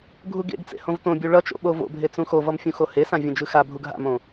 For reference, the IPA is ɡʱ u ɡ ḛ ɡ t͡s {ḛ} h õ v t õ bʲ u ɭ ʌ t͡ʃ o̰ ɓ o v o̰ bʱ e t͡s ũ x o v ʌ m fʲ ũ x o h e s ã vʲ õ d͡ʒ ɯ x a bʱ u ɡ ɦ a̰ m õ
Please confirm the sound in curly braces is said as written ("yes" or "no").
yes